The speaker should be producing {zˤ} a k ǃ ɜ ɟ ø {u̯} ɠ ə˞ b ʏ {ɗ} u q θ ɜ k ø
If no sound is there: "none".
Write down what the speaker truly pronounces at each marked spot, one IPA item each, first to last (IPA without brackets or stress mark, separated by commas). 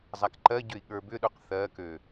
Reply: zˤ, i̯, ɗ